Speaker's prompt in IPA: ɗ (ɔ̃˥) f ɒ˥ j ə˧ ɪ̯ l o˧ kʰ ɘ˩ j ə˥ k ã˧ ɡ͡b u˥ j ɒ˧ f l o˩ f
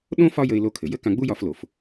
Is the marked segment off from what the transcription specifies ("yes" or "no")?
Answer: yes